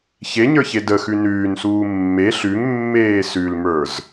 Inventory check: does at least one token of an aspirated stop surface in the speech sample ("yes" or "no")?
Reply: no